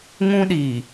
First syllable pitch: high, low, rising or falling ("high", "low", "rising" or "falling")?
high